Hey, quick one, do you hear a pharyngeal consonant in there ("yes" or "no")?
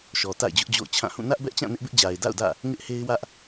no